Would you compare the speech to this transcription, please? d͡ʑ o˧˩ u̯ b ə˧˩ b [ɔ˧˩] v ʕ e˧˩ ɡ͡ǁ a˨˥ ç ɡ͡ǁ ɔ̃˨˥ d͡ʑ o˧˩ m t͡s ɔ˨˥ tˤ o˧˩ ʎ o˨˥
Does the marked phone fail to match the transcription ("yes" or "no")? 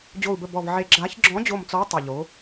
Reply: no